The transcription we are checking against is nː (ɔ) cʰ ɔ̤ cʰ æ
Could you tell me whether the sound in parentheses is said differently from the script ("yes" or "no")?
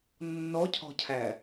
no